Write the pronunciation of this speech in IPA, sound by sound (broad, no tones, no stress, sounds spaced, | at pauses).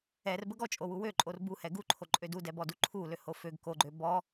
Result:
ɛ r b ə ɡ ɔ t͡ʃʼ o w u w ø ǃʼ o r b u h ɛ ɡ u ǃʰ o ǃʼ ø d u d ɛ b ɔ d u ǃʰ u l ø h o f ø ɡ k o ɡ͡ǃ ø b ɔ